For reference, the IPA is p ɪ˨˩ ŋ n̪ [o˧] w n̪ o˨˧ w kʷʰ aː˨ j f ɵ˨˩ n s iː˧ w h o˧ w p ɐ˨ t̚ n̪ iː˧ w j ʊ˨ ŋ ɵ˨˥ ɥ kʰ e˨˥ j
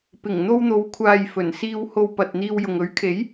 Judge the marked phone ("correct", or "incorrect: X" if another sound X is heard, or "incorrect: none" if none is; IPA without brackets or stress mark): correct